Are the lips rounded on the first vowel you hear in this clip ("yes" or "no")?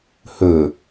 yes